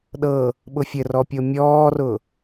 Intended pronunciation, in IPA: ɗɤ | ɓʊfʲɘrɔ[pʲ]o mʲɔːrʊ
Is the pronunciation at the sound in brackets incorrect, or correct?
correct